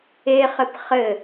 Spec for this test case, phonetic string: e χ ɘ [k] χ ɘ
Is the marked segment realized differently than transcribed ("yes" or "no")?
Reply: yes